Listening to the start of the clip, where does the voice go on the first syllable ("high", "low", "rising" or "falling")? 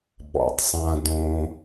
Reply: low